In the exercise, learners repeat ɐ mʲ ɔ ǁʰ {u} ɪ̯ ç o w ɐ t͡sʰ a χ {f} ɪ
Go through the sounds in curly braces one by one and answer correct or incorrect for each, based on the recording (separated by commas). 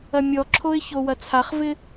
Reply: incorrect, incorrect